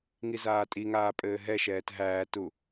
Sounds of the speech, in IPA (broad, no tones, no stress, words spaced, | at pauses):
ŋizaːtʼiŋaː pʼɘːɦɛʃɛːt ɦæːtu